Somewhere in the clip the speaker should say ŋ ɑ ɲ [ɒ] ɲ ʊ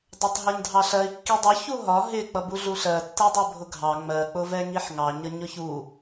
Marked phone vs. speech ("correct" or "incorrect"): incorrect